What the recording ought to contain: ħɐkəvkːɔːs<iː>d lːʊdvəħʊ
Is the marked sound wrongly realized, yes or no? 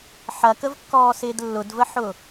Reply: yes